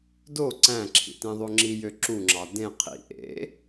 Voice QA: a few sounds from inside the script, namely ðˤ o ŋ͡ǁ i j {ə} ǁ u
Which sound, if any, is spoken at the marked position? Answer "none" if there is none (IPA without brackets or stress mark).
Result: ø